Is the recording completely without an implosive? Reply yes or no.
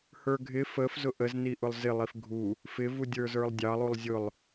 yes